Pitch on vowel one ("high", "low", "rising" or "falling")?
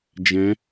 rising